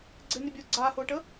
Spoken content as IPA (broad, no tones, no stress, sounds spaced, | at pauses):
ɡ͡ǀ ɪ n ɪ bʲ ʊː ɡ͡ǀ aː h ʊː ʈ ə